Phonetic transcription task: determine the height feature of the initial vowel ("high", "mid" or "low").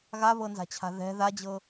low